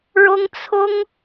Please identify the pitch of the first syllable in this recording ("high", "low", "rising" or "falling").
high